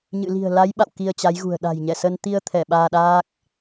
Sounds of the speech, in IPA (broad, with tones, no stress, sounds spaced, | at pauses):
ɲ ɨ̰˧˨ l i̤˨˩ ə̯ l a˨˦ j ɓ a̰˧˨ w k i˧ ə̯ t͡ɕ a˨˦ j ɣ ṳ˨˩ ə̯ ɗ a̤˨˩ j ɲ ɛ˧˩ s ə˧ n t̪ i˧ ə̯ t̪ʰ ɛ˧˩ ɓ aː˧ ɗ aː˦˥ k̚